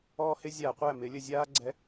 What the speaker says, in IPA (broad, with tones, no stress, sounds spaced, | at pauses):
ɔː˦ h ɪ˦ zʲ a˧˩˧ qʷ æ˥˩ m ɪː˩˧ lʲ ə˨˩ zʲ aː˦ ɡ͡ǀ ɛ˨˥